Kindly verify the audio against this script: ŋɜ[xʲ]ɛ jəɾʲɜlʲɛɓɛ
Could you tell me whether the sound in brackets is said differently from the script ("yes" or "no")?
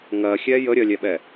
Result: no